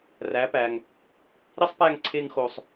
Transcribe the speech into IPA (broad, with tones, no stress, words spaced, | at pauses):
ræ˩˥pæ˩ŋ | ɾi˥sˤpæ˥˩ŋǀʰe˧ŋxo˩sˤ